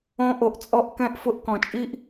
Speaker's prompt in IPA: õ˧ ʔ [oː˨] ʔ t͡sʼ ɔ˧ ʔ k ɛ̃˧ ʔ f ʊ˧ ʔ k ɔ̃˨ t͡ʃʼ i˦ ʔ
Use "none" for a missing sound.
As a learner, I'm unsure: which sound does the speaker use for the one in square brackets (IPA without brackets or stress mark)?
o˨